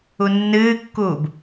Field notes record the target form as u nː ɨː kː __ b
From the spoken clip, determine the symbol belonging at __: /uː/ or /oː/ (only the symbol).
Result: uː